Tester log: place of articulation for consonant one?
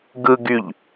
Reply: velar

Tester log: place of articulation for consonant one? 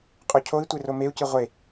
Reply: uvular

